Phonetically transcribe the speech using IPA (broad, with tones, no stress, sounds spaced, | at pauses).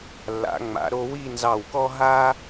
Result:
lː a̰˩˧ ŋ͡m a̰˩˧ ɾ o˧ w i˥˧ n z ɑ˧˩ w k ɔ˥ ɦ a˥